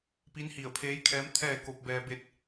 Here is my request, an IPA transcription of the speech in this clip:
p i˧˥ n h i˧˩ ə̯ pʰ eː˧˥ j kʰ ɛː˧˥ m t̪ʰ ɛː˥˨ k o˧ p̚ b ɛː˧ b e˥˨ t̚

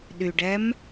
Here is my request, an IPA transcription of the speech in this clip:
ɗ y ɖ ɛ m

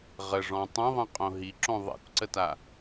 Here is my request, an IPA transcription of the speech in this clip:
ʁ ə ʐ ɔ̃ tˤ ẽ ðˤ ə̃ qʼ õ ɦ i ǁ õ ðˤ ḛ kʷ ǀ ə t a

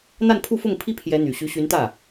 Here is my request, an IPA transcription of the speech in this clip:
n̪ a˥˧ n pʰ u˥˧ f ʊ˥˩ ŋ pʰ i˥ pʰ j ɛ˧˥ n̪ y˨˩ ɕ y˧˥ ɕ y˧˥ n t̪ ä˥˩

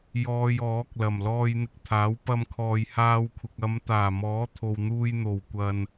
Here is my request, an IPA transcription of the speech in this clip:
j ɔː˧ j ɔː˨˥ k̚ l ɐ˨˩ m l ɔː˧ j n̪ ɪ˧ k̚ t̪ʰ aː˨˥ w p ɐ˧ m kʰ ɔː˨ j h aː˧ w kʷʰ ɪ˨ k̚ ɐ˨˧ m t̪ aː˨˩ m ɔː˨˥ t̪ʰ o˨ w n̪ uː˧ j n̪ o˨˩ w kʷ ɐ˨ n

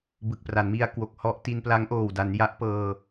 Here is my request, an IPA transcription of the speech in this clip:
b ɯ˨˩ k̚ p r a˩˦ n m i˧ a̯ k w o˨˩ k̚ h ɔ˦˥ ʔ t i˧ n p l a˦˥ ŋ ʔ oː˨˩ w d a˩˦ n j a˦˥ ʔ p ɤː˧

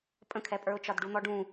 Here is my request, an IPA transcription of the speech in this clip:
pʼ ə̃ kʰ ɛ pʼ ə˞ ʊ̯ t͡ʃ ɒ d ɖ u n̪ ɔ ɖ ũ

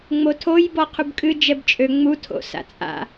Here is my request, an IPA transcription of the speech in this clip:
ŋ͡m o tʰ o j b ɔ qʰ u b kʼ ɨ d͡ʒ ɛ b t͡ʃʼ ø ŋ͡m u tʰ o̰ s a̰ t͡sʼ a̰

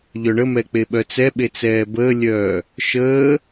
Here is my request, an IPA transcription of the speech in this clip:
ʎ œ ɳ ə m ɛ k͡p e ɓ œ t͡s ɛ ɓ e t͡s ɛː b əː lʲ œː | ʃ əː

